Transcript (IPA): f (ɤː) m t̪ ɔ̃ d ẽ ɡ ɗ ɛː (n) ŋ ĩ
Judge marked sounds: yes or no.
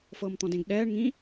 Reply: yes, no

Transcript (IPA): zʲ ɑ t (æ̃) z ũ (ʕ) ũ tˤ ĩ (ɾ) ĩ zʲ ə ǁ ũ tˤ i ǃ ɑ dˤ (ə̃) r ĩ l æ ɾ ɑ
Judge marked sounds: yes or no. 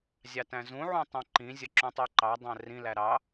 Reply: yes, yes, no, no

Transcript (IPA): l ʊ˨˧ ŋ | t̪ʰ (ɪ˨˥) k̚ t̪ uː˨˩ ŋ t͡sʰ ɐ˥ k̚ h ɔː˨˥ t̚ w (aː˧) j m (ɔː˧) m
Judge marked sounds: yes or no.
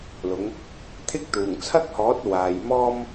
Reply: no, no, no

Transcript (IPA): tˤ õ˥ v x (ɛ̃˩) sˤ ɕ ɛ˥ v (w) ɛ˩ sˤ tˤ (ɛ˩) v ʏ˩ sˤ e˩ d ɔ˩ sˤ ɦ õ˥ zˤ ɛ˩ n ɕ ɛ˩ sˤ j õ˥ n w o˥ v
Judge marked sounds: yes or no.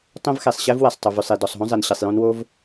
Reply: no, yes, no

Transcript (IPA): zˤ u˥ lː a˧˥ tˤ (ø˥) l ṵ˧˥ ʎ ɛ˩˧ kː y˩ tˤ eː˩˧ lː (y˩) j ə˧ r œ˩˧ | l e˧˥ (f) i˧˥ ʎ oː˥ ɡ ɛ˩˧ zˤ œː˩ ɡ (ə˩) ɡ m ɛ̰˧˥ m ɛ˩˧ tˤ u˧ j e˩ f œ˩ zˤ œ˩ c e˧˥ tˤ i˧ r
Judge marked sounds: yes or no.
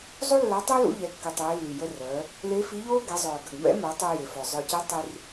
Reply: yes, yes, yes, yes

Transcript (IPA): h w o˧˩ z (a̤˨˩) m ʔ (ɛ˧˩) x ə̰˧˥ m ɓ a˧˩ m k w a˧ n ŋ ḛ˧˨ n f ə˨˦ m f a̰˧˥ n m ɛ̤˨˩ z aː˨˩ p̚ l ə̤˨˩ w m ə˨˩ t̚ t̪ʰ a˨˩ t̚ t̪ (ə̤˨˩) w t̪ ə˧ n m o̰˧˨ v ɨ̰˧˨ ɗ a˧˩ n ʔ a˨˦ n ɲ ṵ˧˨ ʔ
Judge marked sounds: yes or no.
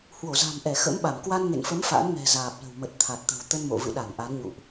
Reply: yes, yes, yes

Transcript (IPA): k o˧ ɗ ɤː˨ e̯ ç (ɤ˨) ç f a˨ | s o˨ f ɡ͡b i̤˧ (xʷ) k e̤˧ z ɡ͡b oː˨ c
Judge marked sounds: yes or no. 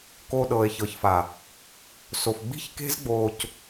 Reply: yes, no

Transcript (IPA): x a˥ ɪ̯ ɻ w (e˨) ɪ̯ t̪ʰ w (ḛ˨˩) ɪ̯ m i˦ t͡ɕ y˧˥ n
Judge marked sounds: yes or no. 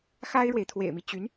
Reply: yes, yes

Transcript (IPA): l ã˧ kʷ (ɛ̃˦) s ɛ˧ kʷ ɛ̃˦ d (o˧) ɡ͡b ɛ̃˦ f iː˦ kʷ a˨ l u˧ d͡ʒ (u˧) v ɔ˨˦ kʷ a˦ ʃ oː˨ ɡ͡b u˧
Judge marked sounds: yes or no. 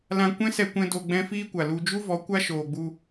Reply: yes, yes, no

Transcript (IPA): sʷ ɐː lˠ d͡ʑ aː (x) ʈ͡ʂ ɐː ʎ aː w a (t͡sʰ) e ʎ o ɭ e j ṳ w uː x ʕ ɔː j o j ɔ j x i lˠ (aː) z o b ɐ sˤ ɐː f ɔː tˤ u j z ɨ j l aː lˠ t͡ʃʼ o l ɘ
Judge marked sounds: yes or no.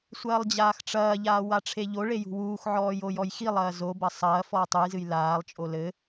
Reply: yes, no, no

